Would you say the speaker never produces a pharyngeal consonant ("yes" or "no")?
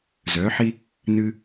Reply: no